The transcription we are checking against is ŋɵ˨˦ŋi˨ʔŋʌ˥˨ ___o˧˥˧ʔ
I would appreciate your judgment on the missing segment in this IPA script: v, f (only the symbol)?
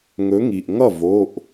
v